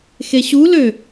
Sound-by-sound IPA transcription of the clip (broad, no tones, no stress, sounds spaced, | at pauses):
x e ɕ u l ø